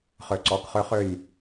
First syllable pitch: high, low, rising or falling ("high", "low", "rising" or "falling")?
low